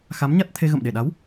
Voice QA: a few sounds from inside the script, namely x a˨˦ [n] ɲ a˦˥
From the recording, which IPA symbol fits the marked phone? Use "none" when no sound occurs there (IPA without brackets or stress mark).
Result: m